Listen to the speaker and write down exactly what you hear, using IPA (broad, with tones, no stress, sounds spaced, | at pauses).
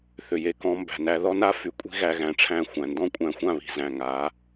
θ ʏ˨ j e˨ k ɔ̃˧ m b æ̤˨ n æ˧ ð ɔ˦ n a˦ f y˨˦ kʷʼ i̤˦ ɣ æ˧ ɣ æ̃˨˦ ʈ͡ʂʰ æ̃˦˨ xʷ æ̃˨ n d ɔ̃˦ kʷʼ æ̃˧ xʷ ã˦˨ β i̤˨ z æ̃˨ ŋ a˨˦